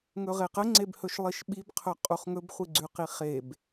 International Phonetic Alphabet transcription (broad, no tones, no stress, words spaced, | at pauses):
ŋɵʁeqə ŋ͡ǀebhɵʃlˠiʃɓib qʰɵqʼuχŋɵb χʷiɡ͡ǀʉqiχeb